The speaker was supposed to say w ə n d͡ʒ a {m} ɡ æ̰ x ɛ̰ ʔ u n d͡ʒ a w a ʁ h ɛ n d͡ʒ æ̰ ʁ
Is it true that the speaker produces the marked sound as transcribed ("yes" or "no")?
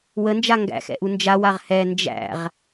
no